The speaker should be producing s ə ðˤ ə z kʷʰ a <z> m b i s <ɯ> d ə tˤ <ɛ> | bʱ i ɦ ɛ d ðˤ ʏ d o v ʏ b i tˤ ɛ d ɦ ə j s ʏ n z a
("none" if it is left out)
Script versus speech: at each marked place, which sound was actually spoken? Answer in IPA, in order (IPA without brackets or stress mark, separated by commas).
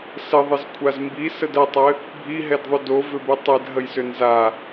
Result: z, ə, ɘ